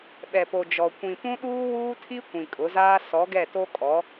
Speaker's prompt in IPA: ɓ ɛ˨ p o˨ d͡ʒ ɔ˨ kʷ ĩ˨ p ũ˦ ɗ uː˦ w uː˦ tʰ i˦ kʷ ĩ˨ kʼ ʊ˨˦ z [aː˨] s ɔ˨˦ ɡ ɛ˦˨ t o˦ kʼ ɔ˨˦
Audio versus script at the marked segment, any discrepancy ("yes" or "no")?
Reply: yes